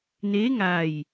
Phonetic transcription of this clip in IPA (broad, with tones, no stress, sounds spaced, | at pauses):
n eː˧˥ ŋ a˧˩ j